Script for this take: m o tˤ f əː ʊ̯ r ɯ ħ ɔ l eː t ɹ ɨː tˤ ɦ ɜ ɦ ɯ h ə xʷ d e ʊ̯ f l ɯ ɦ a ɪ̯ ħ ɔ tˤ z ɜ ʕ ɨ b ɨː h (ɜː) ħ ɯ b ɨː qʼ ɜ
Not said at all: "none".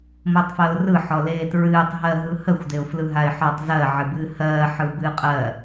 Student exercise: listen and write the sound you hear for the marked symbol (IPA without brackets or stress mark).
ɜː